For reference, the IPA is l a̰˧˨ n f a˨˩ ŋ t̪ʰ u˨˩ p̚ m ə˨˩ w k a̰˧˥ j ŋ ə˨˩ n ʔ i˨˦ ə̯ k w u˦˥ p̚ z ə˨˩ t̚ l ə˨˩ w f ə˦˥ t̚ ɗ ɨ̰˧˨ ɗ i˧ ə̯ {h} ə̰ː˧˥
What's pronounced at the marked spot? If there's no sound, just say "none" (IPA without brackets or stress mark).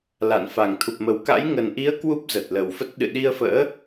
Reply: f